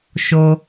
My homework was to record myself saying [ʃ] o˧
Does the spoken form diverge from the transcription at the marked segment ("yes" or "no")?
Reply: no